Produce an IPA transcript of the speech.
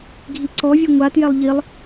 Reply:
ɡʱiǀɔvʲɨ ŋʷatjɛlˠ ʎilˠ

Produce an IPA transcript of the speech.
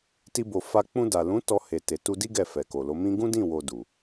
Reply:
ti˧bo˨ fa˧ k͡pũ˧da˨ lũ˨˦ tɔ˧ he˨te˨tu˧di˦ ɡɛ˦˨fɛ˨ko˨lo˨˦ mĩ˦ ɡũ˦dĩ˦˨wo˨ du˨

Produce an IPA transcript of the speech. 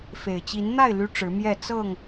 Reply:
fe˨˩ɪ̯ t͡ɕi˨˦nn̪a˥˨ɪ̯ ly˦ʈ͡ʂɻ̩˨˦mjɛ˥˨ t͡sɤ˥˨ŋ

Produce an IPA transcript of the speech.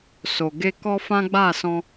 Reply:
so˨ ɡe˧kɔ˦fã˦ ɡ͡ba˦˨sɔ̃˧

